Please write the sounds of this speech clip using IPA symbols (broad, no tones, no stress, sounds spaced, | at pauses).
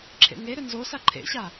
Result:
ǁʰ ḛ ŋ e ɾ ʏ n z o s a ǃʰ ḛ ɕ a